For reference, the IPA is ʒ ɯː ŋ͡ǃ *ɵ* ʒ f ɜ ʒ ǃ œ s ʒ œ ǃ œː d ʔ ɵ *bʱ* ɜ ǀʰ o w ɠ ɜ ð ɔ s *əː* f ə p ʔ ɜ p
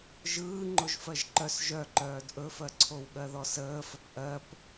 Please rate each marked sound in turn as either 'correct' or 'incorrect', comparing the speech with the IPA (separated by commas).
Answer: incorrect, incorrect, correct